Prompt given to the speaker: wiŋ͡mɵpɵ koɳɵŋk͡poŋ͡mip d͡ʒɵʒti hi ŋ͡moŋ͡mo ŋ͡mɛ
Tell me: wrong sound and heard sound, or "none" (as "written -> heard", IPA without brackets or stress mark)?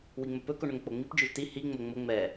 none